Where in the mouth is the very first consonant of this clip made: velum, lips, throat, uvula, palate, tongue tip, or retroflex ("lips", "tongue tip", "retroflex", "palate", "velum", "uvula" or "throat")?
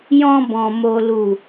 palate